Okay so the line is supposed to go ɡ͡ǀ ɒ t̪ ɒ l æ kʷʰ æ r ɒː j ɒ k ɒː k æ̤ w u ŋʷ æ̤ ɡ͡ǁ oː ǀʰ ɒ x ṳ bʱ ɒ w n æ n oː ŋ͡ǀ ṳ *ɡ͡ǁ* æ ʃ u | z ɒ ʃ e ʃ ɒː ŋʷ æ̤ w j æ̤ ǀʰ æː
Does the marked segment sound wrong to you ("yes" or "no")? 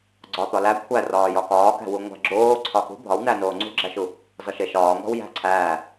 no